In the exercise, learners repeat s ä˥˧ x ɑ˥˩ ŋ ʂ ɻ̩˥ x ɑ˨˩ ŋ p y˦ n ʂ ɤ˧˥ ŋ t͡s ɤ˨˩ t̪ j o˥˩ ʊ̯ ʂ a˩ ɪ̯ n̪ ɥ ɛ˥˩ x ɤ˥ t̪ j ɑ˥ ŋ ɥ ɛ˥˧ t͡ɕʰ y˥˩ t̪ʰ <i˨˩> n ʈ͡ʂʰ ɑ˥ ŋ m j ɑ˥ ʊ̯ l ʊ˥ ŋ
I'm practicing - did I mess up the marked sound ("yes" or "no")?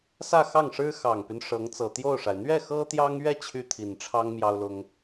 no